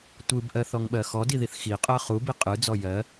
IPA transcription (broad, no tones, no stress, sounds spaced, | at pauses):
tʷ ɯ b ʔ ɜ θ ɔ ŋ ɓ ɜ x ɔ d i ð i θ x i qʼ ɜ χ u b i qʼ ɯ d͡z ɔ j ɜ